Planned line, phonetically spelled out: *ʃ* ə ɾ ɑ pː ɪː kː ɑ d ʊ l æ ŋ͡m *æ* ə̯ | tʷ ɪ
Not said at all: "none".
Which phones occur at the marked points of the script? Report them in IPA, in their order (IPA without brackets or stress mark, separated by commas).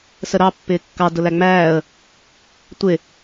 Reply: s, æː